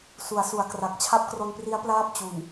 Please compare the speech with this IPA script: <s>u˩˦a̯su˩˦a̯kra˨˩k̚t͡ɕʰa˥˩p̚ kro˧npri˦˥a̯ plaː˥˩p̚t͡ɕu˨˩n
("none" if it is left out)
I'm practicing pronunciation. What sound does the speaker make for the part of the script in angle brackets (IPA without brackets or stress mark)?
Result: s